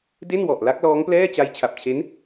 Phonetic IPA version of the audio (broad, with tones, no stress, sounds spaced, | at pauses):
d e˥˩ n w ɔ˨˩ ʔ l a˦˥ k̚ l ɔː˦˥ ŋ p l ɛː˥˩ t͡ɕ a˦˥ j t͡ɕʰ a˨˩ p̚ t͡ɕʰ e˦˥ n